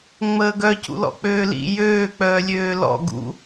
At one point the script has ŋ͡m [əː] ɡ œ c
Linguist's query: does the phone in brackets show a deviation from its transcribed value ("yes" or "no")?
no